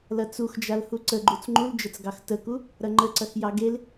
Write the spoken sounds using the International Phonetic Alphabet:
l ɐ t͡s u x d͡ʒ a l h u ǀ ə ɡ͡ǃ u t͡s ŋ͡ǃ u l d͡ʒ ə t͡s ɡ ɑ x t ə k u | ɾ ɐ ŋ͡ǃ ə ǀ ɐ x j ɑ ɡ e l

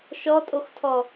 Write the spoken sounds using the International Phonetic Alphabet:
ʃ ɔ tʼ o x tʰ ɔ

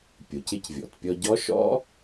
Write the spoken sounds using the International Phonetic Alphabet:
pʲ o˩ c ɪ˧ c vʲ ɔ̰˩ t pʲ ɔ˧ ɟ ɔ˦˥ ʃ ɔ̰˦˥

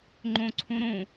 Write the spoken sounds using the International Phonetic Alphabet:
ŋ͡ǃ õ ǀʰ ũ ɾ õ

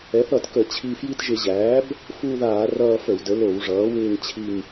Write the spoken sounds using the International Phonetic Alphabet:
ɛ˩˥ θ ʌ˧˩˧ t k ə˧˩˧ t͡ɕʰ i˦˨ f j i˦˨ t ʒ ɪ˧˩˧ ʑ æː˩˥ b | f u˦˨ ð aː˧˩˧ r ʌː˦˨ f ə˧˩˧ w d ə˩˥ l o˧˩˧ w ʐ ʌː˩˥ w ɪː˦˨ ŋ t͡ɕʰ i˦˨ ŋ

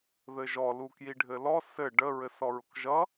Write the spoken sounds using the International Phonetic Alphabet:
ð ɘ ʒ ɔ l u k j i ɖʱ ɘ l ɔ s ɘ ɖ ə ɹ ɘ s ɔ ɹ ʊ k ʒ ʌ

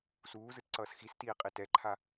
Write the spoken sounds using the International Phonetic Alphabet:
s uː z ɯ t ǀ ʌː s x i s t iː qʼ i t ɛ ǃʰ a

